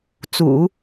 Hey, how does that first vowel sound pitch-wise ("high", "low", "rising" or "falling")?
low